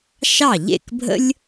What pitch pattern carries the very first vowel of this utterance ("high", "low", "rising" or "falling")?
falling